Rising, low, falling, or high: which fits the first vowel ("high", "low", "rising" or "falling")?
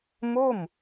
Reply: falling